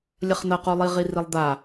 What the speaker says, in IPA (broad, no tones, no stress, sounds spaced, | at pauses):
lʲ ɐ χ n ɐ q u lˠ i ʁ i r i lˠ d̪ a